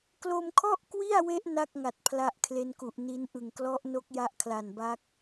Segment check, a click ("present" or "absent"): absent